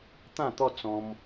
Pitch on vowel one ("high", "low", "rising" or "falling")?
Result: falling